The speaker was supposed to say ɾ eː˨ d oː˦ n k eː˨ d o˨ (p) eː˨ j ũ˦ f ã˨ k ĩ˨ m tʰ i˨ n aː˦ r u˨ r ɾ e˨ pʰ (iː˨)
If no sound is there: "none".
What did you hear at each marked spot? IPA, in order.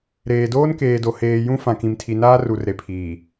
h, iː˨

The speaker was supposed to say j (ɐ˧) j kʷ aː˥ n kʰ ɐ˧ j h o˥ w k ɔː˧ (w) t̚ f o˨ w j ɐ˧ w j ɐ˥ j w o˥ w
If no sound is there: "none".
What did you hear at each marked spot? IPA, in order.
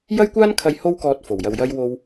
ɐ˥, none

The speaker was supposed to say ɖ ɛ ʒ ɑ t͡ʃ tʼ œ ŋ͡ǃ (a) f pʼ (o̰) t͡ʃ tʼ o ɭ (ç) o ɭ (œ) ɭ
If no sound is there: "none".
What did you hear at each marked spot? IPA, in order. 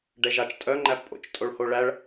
æ, o̰, h, æ

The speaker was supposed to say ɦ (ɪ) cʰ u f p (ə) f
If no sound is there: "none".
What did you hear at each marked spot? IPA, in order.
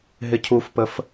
ɪ, ə

